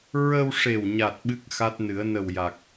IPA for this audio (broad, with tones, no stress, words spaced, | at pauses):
ɹə˧wʂe˨˩wɲa˨˩t̚ ɓɨ˦˥k̚xa˦˥t̚nɨ˨˩˦ə̯ nə˨˩wja˨˩k̚